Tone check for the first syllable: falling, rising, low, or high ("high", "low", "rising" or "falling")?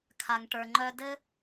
low